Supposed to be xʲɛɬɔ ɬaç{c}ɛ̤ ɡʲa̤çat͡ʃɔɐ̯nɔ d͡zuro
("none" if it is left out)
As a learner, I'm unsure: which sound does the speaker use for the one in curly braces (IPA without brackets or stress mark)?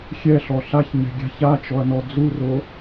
ɲ